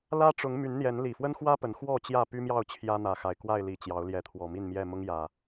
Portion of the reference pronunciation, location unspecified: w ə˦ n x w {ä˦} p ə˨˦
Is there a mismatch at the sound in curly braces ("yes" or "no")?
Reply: no